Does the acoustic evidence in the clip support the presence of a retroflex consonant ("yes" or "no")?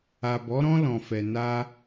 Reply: no